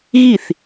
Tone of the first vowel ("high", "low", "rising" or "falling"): falling